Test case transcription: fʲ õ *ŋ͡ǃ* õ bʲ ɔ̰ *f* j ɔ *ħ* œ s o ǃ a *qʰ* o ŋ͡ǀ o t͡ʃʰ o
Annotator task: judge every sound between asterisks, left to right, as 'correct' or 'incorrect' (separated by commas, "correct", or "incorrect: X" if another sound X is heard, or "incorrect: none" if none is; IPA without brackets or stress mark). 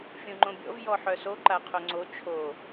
correct, incorrect: v, correct, correct